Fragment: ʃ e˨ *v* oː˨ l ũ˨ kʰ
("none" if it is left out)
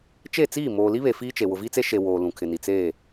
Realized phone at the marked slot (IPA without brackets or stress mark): w